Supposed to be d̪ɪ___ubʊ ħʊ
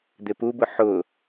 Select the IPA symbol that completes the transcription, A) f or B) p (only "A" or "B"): B